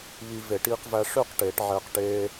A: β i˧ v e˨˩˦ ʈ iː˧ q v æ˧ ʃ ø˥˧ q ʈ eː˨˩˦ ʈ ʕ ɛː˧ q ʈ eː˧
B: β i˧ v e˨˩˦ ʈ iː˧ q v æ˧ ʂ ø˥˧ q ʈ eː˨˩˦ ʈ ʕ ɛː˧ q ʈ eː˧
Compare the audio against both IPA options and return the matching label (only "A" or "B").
B